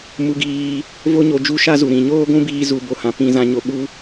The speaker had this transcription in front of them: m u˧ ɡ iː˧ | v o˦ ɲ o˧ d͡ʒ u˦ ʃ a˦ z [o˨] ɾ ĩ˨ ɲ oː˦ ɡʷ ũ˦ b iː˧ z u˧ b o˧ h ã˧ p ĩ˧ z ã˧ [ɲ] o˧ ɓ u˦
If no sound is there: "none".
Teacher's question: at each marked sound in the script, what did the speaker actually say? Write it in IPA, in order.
u˨, ɲ

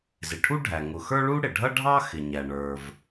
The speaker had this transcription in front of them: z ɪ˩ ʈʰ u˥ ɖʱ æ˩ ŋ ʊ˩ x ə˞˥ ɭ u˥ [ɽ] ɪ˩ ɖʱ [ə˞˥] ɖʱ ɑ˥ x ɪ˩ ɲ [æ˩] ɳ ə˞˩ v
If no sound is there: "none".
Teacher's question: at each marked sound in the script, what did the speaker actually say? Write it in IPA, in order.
ɽ, ʌ˥, æ˩

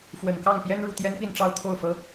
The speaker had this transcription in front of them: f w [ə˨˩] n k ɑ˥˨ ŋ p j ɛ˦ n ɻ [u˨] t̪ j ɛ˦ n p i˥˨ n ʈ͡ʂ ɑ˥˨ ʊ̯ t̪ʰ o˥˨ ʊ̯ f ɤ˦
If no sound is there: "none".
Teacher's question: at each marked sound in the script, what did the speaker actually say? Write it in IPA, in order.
ə˨˩, u˨

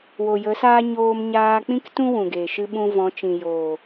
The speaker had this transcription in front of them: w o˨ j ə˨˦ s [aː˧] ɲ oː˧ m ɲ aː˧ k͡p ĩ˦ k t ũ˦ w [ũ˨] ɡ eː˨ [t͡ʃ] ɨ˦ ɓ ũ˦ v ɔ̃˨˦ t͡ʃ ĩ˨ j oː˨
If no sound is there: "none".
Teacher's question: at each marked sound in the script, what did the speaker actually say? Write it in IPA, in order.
aː˦, ũ˨, ʃ

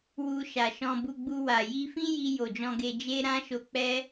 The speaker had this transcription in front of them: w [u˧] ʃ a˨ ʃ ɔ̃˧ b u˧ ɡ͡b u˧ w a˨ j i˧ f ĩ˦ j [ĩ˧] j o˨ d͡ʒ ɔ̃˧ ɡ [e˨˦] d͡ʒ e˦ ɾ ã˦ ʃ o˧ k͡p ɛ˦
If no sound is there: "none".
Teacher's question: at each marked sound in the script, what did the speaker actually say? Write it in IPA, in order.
u˧, i˧, e˧

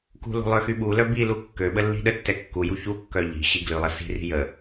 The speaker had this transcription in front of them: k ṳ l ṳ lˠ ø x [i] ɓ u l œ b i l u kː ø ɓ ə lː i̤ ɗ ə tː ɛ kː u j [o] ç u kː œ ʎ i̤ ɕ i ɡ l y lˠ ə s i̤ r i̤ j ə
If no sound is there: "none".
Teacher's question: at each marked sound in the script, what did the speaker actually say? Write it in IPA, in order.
y, u

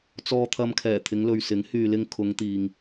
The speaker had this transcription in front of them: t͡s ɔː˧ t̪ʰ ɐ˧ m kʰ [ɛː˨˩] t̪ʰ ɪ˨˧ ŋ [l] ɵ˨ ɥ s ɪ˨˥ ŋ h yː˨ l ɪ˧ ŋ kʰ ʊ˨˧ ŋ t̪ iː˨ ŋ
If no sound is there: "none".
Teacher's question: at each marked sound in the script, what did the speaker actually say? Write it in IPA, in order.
ɛː˨˩, l

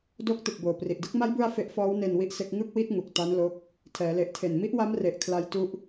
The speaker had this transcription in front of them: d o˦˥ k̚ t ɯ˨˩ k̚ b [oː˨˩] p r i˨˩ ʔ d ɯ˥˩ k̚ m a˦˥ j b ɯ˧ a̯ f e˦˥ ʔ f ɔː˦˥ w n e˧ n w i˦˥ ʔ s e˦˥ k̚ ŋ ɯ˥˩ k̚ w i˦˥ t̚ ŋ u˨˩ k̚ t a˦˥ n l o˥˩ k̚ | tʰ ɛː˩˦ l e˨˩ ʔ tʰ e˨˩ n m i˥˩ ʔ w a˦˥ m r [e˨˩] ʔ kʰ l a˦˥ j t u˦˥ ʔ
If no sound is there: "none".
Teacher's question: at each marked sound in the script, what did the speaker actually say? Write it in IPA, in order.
oː˨˩, e˨˩

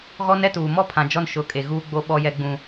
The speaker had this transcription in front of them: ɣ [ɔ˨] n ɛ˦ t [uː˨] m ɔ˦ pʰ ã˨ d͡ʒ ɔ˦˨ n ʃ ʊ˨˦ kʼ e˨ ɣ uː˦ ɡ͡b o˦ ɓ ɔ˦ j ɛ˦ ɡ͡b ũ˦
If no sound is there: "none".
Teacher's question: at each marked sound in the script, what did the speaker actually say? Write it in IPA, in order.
ɔ˦, uː˨

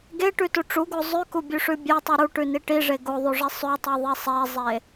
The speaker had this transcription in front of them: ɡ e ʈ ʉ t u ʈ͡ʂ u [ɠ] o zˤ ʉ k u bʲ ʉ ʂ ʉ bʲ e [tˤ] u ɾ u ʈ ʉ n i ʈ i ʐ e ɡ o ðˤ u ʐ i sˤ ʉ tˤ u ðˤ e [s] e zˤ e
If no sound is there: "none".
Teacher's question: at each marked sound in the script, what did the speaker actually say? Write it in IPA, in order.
ɡ, tˤ, sˤ

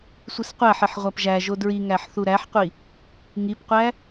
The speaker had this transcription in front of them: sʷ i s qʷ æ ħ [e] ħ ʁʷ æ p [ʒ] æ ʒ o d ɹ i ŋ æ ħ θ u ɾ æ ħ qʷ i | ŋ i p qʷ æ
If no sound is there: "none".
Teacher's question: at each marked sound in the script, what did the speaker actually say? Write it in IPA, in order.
e, ʒ

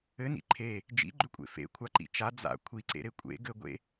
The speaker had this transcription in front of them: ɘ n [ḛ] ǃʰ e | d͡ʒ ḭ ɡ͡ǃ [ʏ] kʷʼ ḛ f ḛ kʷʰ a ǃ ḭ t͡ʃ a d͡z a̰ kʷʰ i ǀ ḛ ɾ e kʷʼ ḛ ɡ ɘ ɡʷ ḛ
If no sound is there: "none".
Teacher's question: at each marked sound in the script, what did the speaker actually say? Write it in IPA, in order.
ḭ, ʏ

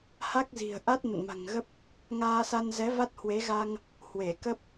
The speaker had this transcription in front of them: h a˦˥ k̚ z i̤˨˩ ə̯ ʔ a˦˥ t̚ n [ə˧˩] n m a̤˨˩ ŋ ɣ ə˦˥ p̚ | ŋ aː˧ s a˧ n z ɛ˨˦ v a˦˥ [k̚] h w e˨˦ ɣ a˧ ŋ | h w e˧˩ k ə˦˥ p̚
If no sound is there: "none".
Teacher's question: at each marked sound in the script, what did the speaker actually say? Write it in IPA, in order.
ə̰˧˨, t̚

